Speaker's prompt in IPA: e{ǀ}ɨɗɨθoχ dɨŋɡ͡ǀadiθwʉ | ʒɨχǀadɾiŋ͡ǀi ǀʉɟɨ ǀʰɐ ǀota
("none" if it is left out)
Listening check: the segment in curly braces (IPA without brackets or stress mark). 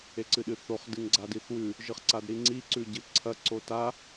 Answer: ǀ